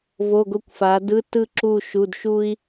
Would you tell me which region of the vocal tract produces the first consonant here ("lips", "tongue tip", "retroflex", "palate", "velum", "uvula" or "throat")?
lips